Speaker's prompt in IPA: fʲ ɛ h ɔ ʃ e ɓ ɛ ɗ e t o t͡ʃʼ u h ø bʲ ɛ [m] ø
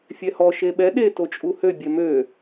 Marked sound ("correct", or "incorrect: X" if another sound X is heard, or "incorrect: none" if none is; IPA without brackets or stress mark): correct